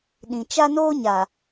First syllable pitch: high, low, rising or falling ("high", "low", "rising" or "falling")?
low